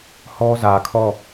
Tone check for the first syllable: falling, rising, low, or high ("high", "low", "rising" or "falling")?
high